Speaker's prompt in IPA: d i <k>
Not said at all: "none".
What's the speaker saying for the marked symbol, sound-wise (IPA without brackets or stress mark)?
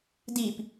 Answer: p